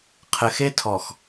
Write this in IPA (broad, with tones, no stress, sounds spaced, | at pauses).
qʰ ɘ˨ x e˦ tʰ ɔ˨ x